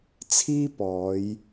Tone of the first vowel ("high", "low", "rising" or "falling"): high